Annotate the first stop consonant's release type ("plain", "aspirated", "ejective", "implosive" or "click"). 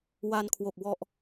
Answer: aspirated